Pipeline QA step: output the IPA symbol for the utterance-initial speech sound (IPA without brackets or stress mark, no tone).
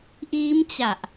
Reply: ʔ